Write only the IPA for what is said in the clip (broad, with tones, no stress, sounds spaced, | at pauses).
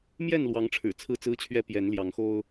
m j ɛ˥˨ n l w ɑ˨˦ ŋ ʈ͡ʂʰ ɻ̩˨˩ t͡sʰ ɹ̩˥˨ t͡s ɹ̩˦ t͡ɕʰ ɥ ɛ˦ p j ɛ˨˦ n l j ɑ˨˦ ŋ x o˦ ʊ̯